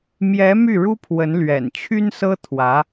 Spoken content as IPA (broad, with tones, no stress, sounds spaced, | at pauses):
m j ɛ˧˥ m y˥˩ ɻ u˥ pʰ w ə˧˥ n l ɥ ɛ̰˨˩ n t͡ɕʰ y˥ n s ɤ˥ t̪ʰ w ä˧˥